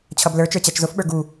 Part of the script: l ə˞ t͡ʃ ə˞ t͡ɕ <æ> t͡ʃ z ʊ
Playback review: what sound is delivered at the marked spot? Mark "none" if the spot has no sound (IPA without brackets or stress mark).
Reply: æ